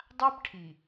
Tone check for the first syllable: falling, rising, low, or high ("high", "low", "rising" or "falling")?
high